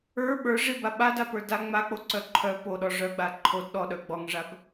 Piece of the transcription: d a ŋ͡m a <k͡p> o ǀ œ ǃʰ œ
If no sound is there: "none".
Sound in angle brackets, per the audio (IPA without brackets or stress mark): k͡p